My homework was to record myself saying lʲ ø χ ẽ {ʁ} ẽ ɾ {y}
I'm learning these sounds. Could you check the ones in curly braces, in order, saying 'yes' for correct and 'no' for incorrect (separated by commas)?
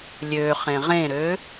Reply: yes, no